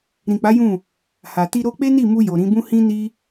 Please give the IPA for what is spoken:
ɾĩ˨k͡pa˨˦ jũ˦˨ | ha˨ti˧ ɾo˧k͡pe˦ni˦˨ mu˧ jo˨ɾĩ˨˦bũ˦ hĩ˦ni˦

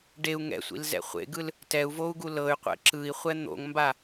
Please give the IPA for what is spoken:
ɖeu̯ ŋɛ̰sʷḭlzɛ̰ χʷḛɡɯl | tɛu̯vou̯ɡu lɤy̯qʷɛ̰ ǁɯi̯χʷɛ n̪o̰ŋmba

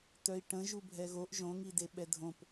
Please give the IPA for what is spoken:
tœi̯ʈə̃ ʒubʱɛɣoʔ ʒõŋide ɓɛdʱõp

